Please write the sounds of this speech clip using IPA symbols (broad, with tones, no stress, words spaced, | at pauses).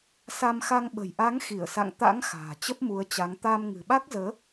sa˧mxa˧ŋ ɓə̤˨˩jʔa˨˦ŋ xi˧˩ə̯sa̰˧˨ŋ t̪a̰˧˥ŋ xa̤ː˨˩ t͡ɕə˦˥p̚mu˨˦ə̯t͡ɕa˨˦ŋ t̪aː˧mŋɨ̤˨˩ɓa˦˥k̚zəː˨˦